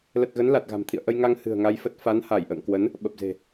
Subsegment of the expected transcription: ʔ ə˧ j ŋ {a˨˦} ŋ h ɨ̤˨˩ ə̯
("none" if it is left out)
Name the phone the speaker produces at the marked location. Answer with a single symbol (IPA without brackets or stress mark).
a˧